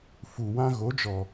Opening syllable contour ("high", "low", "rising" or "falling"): low